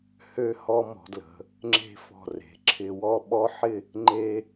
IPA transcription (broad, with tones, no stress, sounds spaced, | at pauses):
h ø˥ h ɔ˥ m ɔ̤˩˧ d l ə̤˩˧ | ŋ͡ǁ e̤˥ f ɔ̤˧˩ r e̤˩˧ ǁʰ ɪ˧ w ɔ˥˧ ɓ ɔ˥ ħ ɪ˥˧ | ŋ͡ǃ e˥